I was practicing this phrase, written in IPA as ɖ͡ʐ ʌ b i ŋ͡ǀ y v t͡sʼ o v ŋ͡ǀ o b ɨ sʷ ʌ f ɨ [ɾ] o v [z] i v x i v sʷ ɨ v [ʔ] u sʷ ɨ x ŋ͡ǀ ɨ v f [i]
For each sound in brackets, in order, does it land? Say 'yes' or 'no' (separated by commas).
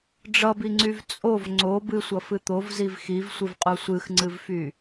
no, yes, no, no